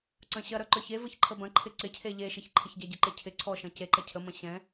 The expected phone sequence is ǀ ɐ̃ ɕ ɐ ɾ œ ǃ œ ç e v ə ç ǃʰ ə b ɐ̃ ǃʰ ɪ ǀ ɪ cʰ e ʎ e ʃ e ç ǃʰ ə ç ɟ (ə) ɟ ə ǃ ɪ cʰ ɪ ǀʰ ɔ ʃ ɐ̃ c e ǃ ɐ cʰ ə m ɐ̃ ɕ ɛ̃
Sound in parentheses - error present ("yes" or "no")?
yes